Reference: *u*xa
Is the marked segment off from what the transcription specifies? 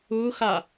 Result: no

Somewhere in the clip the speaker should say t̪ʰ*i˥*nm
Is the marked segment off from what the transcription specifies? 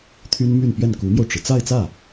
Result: yes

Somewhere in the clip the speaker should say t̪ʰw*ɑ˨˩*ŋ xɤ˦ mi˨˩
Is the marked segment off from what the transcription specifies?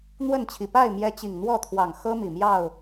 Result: no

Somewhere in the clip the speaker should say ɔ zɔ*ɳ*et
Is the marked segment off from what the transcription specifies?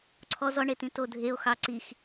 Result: no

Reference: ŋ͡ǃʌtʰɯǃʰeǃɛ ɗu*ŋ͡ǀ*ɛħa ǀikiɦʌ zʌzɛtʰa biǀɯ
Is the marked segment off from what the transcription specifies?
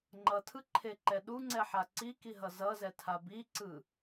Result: no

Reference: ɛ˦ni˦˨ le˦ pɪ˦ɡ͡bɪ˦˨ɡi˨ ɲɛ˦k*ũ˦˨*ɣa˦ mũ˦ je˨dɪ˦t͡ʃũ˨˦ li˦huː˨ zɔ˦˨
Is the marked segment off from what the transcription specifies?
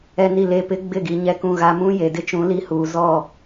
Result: no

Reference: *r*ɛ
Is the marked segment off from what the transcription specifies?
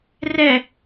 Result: no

